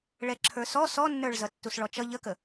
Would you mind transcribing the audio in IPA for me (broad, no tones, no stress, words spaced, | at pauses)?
ɭɛǁʰə˞sɔ sɔnːə˞ɭ zʌtːusɭɔt͡ʃʌ ʎəkə